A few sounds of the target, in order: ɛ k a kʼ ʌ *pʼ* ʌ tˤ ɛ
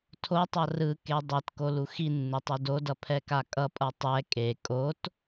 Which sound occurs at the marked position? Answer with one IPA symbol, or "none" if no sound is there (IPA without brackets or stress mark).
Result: pʼ